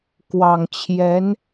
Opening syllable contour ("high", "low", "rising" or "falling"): low